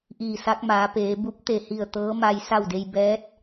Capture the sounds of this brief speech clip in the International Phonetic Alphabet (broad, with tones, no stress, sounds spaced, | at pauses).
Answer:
ʔ iː˧˩ s a˧˥ k̚ m aː˩˧ p eː˩˧ b u˧˥ p̚ t̪ e˧˩ h i˧˩ ə̯ t̪ ɤː˧˥ m a˧ j s a˥˨ w d e˧ j b ɛː˧˥ t̚